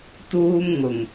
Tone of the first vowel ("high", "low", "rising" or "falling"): high